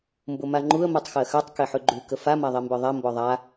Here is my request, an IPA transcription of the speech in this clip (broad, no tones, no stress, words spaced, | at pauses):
mbʊmaŋ͡ǃuə̯ mutˤxɜxœtˤ keħʉɡ͡ǃʉ kəfa maðˤembœðˤɛ mbɔðˤa